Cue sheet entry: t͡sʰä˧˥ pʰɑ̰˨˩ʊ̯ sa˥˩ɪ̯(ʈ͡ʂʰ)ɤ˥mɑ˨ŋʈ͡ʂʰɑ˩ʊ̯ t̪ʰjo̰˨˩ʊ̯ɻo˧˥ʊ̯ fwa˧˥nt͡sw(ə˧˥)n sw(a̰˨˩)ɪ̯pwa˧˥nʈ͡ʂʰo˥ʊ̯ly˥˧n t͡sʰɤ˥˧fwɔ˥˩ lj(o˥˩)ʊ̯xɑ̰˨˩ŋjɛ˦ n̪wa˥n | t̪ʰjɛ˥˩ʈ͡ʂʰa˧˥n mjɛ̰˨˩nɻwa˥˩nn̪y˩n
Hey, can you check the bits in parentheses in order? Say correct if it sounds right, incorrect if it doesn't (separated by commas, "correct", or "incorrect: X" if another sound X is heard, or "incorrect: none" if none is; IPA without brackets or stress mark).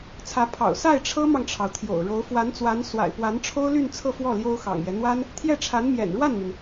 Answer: correct, incorrect: a˧˥, correct, incorrect: o˥